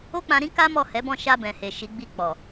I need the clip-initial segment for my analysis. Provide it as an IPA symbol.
o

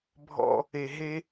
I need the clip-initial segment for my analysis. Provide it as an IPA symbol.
bʱ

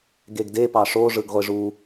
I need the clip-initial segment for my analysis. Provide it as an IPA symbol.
ɡ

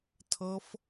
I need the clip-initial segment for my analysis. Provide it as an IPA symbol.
tʰ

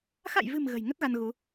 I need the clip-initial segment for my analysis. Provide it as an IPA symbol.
x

